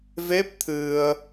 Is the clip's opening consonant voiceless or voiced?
voiced